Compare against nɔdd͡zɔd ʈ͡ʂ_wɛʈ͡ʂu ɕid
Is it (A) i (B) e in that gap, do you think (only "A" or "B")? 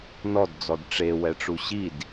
B